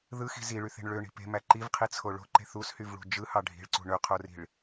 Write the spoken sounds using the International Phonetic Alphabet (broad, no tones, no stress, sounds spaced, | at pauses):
ð ɯ x i̤ z i ɭ y θ e̤ ɳ ɭ ø ɳ i̤ p e̤ m æ ǃ i v qʰ i t͡sʰ o ɭ o̤ ǃ e̤ θ u s h y v ɭ ṳ d͡ʒ ɯ h ɑ ɖʱ i̤ ɭ ǀ ṳ ɳ ø qʰ o r i̤ ɭ